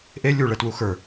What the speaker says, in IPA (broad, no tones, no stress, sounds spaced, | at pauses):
ʔ e lʲ u ɭ ɛ t w u x ə˞